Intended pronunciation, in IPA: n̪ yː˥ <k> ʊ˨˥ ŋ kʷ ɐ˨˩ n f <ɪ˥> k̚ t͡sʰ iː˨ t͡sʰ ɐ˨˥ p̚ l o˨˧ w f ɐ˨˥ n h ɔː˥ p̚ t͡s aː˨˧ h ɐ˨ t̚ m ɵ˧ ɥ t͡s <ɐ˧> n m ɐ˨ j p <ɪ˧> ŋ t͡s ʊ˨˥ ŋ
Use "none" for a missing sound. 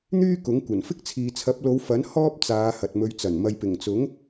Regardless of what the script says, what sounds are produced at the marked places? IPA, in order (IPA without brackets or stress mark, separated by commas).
k, ɪ˥, ɐ˨˩, ɪ˨˩